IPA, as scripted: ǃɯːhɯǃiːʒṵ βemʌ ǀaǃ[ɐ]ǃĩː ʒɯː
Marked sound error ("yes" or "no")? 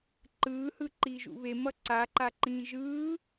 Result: yes